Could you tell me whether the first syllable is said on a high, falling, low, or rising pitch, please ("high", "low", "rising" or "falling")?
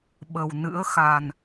low